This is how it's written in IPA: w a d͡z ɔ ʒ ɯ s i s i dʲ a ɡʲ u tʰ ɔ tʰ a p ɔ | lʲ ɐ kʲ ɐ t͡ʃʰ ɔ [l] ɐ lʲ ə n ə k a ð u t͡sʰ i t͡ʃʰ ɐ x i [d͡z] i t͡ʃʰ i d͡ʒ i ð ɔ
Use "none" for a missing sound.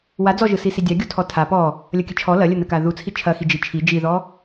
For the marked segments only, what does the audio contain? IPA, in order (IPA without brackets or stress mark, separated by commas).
l, d͡ʒ